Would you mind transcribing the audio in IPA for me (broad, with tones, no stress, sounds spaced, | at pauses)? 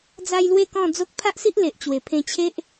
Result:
d͡z a˧ j l w e˥˧ k ɔ̃˥˧ d͡z o˦ k̚ pʰ a˦ ʔ s i˦ ʔ l e˨ ʔ t͡ɕ w e˨˩ pʰ ẽ˧ t͡ɕʰ e˦ ʔ